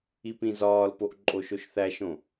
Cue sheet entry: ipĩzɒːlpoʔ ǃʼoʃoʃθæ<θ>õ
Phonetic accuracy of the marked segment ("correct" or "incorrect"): incorrect